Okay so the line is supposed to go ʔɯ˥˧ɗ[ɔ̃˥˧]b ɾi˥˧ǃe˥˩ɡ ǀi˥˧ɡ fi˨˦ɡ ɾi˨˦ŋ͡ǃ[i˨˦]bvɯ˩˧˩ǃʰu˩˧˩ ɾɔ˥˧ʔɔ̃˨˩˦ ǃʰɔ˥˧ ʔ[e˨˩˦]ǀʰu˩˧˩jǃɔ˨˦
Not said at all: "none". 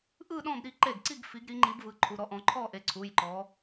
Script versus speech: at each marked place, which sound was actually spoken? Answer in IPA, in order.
ɔ̃˥˧, i˨˦, e˨˦

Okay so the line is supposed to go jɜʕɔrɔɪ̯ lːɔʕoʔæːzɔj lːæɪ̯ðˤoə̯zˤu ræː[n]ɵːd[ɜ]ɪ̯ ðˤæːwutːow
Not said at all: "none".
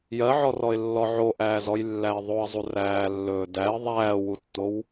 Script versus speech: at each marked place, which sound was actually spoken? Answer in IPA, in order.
lː, æ

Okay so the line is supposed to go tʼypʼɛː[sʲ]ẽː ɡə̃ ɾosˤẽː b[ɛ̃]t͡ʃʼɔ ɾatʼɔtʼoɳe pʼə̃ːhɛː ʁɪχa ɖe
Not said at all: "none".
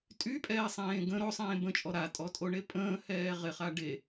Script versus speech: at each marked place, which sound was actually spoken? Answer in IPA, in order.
sˤ, ə̃

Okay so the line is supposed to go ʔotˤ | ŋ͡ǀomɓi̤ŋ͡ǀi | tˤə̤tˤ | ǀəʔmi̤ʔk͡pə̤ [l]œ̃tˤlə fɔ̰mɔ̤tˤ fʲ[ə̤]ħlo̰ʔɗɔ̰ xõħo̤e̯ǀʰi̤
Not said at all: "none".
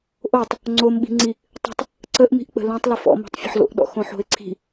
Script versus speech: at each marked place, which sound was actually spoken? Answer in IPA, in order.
l, ə̤

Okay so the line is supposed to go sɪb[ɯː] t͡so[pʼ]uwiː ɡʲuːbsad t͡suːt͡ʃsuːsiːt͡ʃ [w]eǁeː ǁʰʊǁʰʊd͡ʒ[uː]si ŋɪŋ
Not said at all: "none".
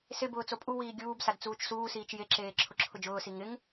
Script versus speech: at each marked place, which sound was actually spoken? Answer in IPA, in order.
ʊː, pʼ, j, ʊː

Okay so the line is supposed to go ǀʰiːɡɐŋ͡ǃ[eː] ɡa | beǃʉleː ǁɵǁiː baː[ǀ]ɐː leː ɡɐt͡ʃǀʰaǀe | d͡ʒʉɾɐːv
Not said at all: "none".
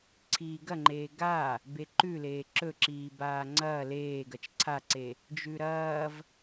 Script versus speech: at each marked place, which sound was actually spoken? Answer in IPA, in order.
eː, ŋ͡ǀ

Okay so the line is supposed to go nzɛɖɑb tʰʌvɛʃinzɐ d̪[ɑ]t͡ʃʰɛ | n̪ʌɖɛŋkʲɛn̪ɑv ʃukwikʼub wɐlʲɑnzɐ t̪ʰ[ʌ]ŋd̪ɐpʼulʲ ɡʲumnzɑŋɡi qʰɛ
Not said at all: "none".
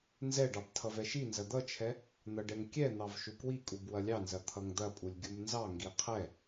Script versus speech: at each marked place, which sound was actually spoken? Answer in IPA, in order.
ʌ, ʌ

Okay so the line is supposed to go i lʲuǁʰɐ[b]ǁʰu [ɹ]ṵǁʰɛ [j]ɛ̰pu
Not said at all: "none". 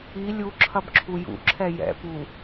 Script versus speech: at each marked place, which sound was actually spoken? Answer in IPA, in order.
b, j, j

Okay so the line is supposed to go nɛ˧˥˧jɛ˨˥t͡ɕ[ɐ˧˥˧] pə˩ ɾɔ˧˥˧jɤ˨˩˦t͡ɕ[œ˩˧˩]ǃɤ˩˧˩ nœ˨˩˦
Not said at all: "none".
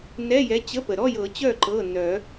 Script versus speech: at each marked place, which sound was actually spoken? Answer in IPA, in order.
ə˧˥˧, œ˥˩

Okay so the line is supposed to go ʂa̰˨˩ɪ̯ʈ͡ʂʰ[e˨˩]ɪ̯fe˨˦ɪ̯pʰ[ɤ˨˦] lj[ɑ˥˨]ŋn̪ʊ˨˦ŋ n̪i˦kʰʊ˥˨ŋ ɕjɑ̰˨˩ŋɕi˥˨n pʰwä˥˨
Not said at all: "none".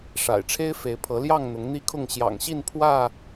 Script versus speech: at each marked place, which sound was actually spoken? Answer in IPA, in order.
e˦, ɤ˨˦, ɑ˥˨

